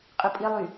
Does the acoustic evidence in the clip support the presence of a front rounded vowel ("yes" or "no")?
yes